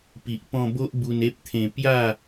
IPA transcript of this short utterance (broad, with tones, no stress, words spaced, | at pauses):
pi˨ʔpɔ̃˧bo˦ʔ bu˧ne˦p̚t̪ʰẽ˧ pja˥˧